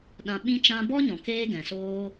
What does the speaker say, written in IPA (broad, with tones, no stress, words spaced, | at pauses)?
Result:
ɗã˨ ɓĩ˦t͡ʃã˦ bɔ˦ɲɔ̃˨ keː˦ɡɛ̃˨soː˦